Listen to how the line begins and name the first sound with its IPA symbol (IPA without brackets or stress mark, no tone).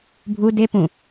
bʱ